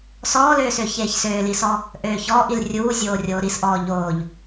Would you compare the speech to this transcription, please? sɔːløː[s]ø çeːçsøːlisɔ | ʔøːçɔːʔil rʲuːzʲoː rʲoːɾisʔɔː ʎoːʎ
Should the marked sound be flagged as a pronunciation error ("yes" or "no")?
no